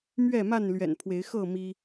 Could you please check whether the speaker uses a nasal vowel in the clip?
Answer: no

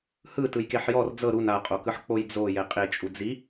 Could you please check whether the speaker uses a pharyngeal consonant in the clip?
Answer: yes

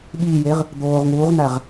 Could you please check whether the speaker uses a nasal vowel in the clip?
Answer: no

